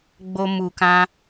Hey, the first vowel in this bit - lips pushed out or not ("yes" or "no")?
yes